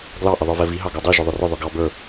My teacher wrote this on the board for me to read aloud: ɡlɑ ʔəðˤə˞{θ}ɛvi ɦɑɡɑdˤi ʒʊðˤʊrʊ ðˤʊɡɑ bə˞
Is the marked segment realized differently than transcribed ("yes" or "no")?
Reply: yes